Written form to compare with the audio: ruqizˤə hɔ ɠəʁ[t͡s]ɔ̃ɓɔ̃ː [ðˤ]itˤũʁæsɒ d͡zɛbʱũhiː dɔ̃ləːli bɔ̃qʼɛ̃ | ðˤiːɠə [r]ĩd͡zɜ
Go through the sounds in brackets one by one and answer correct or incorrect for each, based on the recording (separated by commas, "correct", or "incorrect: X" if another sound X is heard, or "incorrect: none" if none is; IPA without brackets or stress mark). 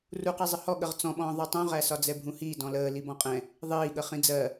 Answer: correct, correct, incorrect: χ